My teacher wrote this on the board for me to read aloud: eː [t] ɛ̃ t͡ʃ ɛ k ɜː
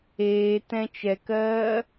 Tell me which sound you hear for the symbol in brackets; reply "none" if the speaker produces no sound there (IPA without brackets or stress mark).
t